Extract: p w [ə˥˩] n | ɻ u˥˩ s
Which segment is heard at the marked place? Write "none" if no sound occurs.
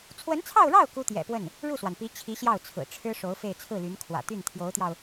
ə˥˩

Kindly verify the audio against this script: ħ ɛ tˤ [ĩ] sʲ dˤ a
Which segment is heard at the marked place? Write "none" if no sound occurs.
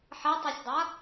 i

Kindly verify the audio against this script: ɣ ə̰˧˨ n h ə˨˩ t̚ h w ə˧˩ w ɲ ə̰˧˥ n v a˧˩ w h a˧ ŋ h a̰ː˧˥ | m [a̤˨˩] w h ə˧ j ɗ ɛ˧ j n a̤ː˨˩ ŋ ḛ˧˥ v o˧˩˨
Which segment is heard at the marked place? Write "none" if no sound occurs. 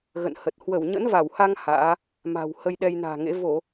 a̤˨˩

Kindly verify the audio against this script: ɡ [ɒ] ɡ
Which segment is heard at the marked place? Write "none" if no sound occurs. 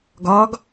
ɒ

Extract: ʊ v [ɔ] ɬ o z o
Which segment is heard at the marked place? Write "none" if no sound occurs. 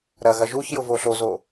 o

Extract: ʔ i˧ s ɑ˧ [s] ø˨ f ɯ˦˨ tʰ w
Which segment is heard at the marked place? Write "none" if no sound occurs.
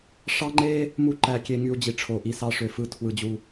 ʂ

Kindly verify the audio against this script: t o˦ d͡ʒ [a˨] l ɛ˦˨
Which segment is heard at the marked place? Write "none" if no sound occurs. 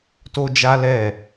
a˦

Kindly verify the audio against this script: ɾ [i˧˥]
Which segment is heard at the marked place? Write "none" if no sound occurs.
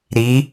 i˧˥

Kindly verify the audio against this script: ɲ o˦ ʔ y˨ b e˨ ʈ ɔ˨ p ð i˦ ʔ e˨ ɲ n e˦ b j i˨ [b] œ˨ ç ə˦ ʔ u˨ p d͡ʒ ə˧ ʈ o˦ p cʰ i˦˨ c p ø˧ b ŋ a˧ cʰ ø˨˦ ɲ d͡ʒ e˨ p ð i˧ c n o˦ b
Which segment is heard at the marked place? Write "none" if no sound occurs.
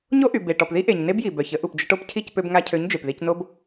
b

